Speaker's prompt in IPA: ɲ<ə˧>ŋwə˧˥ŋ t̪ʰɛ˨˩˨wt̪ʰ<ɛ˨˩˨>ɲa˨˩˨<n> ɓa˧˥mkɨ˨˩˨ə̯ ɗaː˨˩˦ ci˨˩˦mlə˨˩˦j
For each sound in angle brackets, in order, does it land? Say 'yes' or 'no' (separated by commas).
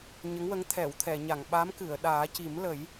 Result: no, yes, no